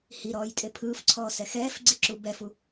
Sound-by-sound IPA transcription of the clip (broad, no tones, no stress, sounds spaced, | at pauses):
h i ɾ ɔː j tʼ e pʰ ɯː f ǀʰ ɔː s ɛ x ɛː f ɡ͡ǀ i ǁ u b ɛ f u